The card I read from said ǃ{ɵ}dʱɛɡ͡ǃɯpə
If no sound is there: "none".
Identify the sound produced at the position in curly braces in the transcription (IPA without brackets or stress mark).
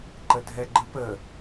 ə